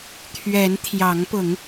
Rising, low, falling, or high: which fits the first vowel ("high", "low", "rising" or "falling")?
rising